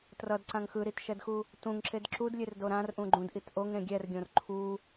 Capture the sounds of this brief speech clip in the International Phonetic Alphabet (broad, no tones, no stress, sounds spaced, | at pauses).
t r ʌ d ǀ ã ŋ x ɯ ɾ i t ʃ ɛ d x u | t ũ ŋ ǁ e d ǁ u d lʲ e r d o ɾ ã r ʔ ũ ɡ͡ǃ ũ d ʔ i t ʔ o ŋ ɾ ẽ ɡʲ ɛ r ɡʲ õ r ǃʰ u